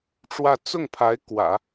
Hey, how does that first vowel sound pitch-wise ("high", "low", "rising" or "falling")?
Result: falling